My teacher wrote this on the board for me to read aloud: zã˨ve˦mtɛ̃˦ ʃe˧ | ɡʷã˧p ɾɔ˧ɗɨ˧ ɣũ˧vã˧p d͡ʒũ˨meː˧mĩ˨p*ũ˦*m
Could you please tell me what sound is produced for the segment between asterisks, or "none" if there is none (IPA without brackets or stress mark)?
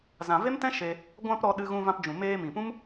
ũ˦